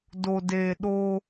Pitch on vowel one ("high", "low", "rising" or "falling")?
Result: low